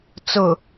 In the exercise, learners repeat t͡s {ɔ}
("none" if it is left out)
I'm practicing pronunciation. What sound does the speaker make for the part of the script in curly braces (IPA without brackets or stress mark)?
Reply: ʊ